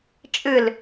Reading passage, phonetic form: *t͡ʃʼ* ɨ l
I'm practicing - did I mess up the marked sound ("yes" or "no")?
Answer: no